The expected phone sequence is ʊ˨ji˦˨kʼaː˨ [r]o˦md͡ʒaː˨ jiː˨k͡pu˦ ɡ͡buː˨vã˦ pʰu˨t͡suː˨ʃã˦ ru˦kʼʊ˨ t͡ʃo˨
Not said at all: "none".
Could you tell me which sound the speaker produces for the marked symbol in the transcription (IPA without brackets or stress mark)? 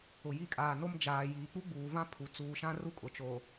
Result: n